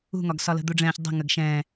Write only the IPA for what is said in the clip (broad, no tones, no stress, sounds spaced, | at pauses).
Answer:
ṳ ŋ ɒ ɡ s ɒ l ə̤ d̪ u ɖ͡ʐ ɛ̃ː ç dˤ ə̤ ŋ ə ɡ ʃ ɛ̃ː